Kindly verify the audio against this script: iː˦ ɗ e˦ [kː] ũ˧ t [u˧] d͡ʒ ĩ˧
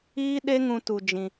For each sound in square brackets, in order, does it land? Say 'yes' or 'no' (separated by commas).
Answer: no, yes